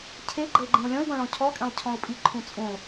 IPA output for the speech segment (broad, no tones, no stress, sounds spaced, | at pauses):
cʰ e ɡ͡ǃ ə ɪ̯ ɡ͡ǃ ẽ ʊ̯ lʲ ɔ̃ ɪ̯ ɡ ɔ̃ ɭ ɔ̃ cʰ ɔ kʼ ẽ lˠ cʰ ɔ̃ ʊ̯ pʼ i ǃʰ ũ t͡sʼ ũ lˠ